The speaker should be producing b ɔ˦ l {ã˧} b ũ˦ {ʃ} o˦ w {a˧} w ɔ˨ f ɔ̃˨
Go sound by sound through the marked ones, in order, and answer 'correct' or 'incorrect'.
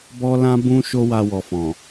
incorrect: ã˦, correct, correct

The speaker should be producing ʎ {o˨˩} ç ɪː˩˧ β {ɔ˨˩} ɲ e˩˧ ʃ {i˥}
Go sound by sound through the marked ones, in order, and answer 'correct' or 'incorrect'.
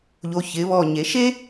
correct, correct, incorrect: e˥

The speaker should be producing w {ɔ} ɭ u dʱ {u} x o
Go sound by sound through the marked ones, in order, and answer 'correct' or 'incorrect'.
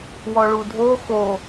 correct, incorrect: o

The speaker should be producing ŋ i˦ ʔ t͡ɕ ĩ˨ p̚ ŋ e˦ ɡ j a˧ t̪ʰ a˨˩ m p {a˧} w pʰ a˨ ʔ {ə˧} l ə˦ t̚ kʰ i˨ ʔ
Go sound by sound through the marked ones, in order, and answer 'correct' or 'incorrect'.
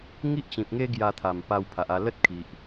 correct, incorrect: a˧

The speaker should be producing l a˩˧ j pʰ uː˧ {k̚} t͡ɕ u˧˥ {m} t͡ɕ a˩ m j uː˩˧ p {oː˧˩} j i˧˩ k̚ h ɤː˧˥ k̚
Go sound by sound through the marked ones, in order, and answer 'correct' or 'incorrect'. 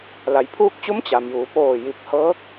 correct, correct, correct

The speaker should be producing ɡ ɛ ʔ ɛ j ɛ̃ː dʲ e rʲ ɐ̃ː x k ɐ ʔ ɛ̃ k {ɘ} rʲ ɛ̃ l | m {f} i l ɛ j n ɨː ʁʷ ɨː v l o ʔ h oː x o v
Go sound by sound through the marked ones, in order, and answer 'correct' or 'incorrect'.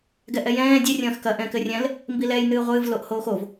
correct, incorrect: b

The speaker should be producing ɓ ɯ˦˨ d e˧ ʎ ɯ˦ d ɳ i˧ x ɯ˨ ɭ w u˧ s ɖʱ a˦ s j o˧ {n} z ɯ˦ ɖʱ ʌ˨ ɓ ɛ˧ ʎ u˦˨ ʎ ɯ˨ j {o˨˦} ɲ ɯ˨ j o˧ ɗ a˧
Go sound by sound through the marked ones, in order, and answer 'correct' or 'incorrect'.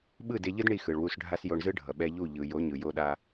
incorrect: ɳ, correct

